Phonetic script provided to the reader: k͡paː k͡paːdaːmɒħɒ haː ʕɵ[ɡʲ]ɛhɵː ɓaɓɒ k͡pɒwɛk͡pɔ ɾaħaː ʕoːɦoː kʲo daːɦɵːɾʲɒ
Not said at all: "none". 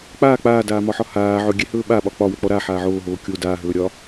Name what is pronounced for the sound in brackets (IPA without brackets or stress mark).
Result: ɡʲ